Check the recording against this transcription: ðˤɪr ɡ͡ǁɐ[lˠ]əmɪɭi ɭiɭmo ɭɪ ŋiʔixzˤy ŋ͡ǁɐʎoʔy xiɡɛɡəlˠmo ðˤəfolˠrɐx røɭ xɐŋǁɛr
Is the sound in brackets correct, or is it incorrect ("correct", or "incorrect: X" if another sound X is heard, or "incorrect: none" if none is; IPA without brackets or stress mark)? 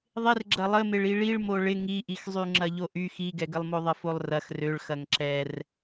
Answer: correct